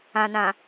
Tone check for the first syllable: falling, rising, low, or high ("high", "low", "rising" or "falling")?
low